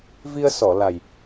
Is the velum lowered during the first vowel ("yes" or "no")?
no